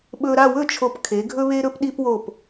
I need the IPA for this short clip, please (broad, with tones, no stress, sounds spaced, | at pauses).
ɓ ɵ˧ ɾ a˥˧ w ɵ˥˧ t͡ʃʰ o˧˩ p kʰ e˩˧ ɡʱ ɵ˥ β e˥ ɾ ɵ˥ p ɗ i˧ p w o˧˩ p